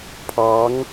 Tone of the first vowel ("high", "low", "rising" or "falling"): rising